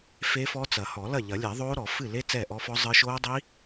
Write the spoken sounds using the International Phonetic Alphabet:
f e˦˥ f ɔ˦˥ t͡s ɐ˨˩˦ h ɔ˨˩˦ l ɐ˥˩ ʎ ɐ˨˩˦ lʲ ɛ˨˩˦ ðˤ oː˦˥ ɾ ɔ˨˩˦ f ɨ˥˩ l e˦˥ t͡s ɛː˥˩ ʔ ɔ˦˥ f ɔ˦˥ zˤ ɨ˦˥ ʃ oː˦˥ dˤ i˦˥

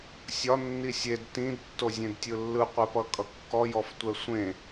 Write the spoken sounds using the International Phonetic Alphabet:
sʲ ɒ nː i sʲ e d t ĩ d tː o zʲ ẽ d tʲ ɯ lː ɯ qʷ ɛ p ʌ kʼ ʌ kː ɔ j ɔ f tʷ ɛ sʷ ẽ

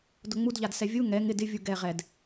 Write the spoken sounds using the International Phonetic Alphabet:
d ʊ ŋ͡m u d ʎ a d s ɛ vʲ u ŋ ɛ ŋ ɪ d ɪ vʲ u ɡ ɛ ʁ ɛ d

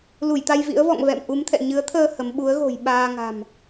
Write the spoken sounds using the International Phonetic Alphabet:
l u˧˩ j t̪ a˧ j v ḭ˧˥ ə̯ v ɔ̰˧˨ ŋ v ɛ̰˧˨ m ʔ u˨˦ m t̪ʰ ɛ̰˧˨ ɲ ɨ˨˦ ə̯ t̪ʰ əː˧ h ə˨˦ m ɓ u˨˦ ə̯ ɣ o̤˨˩ j ɓ aː˧ ŋ a̤˨˩ m

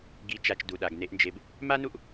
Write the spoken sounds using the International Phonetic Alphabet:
ɡ i˨˦ t͡ʃ a˨ t͡ʃ d u˨ ɗ a˨ ɡ n e˧ ʔ n d͡ʒ e˧ b | m a˦ n u˦ ʔ

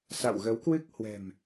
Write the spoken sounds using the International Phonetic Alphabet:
s a̰˧˨ w ɣ ə˨˦ w k w ɨ˦˥ k̚ h w ɛ̤˨˩ m

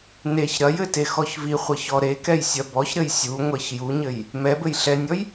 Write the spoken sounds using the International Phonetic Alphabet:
n e ç ɾ ɐ j ɘ t e x ɔ ç v i χʷ ɐ ç ɔ ɾ e k ɛ j sʲ ɐ b ɔ ç ɾ ɘ j sʲ u ŋʷ ɛ ç j u ɲ ɘ j | m ɛ b ɘ j ɬ ɛ nʲ ɔ j

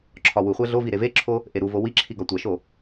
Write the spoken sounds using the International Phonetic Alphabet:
ǁʰ ɒ w u χʷ æ ɮ o v i ɾ e v e ǁʰ o | ʔ e ɾ u v o w i ǁʰ i ɡ ɒ tʷ æ ʃ o

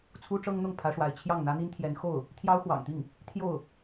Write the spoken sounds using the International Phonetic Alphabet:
t͡sʰ u˥ ʈ͡ʂ ɤ˥ ŋ n̪ ʊ˥˩ ŋ pʰ ä˧˥ ʂ w a˧˥ ɪ̯ t͡ɕʰ j ɑ˥˩ ŋ n̪ ä˥ n̪ i˥ n t̪ʰ j ɛ˧˥ n x o˥˩ ʊ̯ | t̪ʰ j ɑ˥ ʊ̯ x w ɑ̰˨˩ ŋ t̪ i˥˩ ŋ | t̪ʰ j o˥˩ ʊ̯

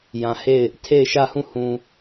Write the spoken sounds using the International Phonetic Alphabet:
j ã˨ h e˦˨ ɪ̯ | tʰ e˦˨ ɪ̯ ʃ ä˦˨ h ũ˦˨ h ũ˨

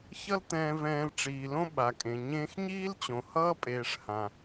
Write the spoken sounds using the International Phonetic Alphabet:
ç ʌ˦ l t̪ ɛ̃ː˧ v ɛ̃ː˧ l ʈ͡ʂ iː˨ l õ˦ ɓ a˨ kʼ ẽ˨ ɲ ẽː˧ x ɲ iː˦ l t͡ɕ õ˨ h ʌː˦ pʼ eː˨ ʂ h ã˨

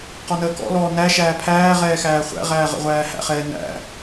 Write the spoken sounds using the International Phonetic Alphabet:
q ɔ n əː k ɔ̰ l ɔː n æ ʃ æː pʰ æː ʁ ɛː x æː χʷ æ̰ ʁ æː ʁ ə̰ ʁʷ æː h æ̰ χ ɛː n æ̰

